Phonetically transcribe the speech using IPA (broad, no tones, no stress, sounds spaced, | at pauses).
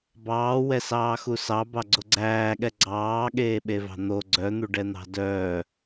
b ɑː w ɛ s ɑː x u s ɑ b ɑ ɡ͡ǀ o ɡ͡ǀ æː ɠ ɛ ɡ͡ǀ ɑː ɠ eː ɓ e v ɑ̤ n̪ o ɡ͡ǀ œ n̪ u ɖ ɛ n̪ ɑ̤ d œː